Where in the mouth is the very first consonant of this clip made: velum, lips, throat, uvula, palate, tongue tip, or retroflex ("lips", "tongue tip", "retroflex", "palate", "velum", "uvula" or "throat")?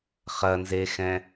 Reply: uvula